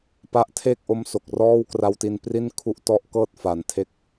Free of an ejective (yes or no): yes